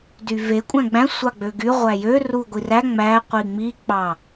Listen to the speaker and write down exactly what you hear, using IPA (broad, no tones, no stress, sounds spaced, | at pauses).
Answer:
d y v e kʷʼ æ̃ ɡ͡b æ̃ sʷ ɑ ɡ͡b ø ɡ y ʁʷ æ j ø r u ɡʷ i r æ ŋ͡m æ qʷ i ŋ͡m i k͡p ɑ